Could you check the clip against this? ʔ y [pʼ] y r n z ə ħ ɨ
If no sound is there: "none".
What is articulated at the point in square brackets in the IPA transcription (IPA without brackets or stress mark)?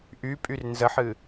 pʼ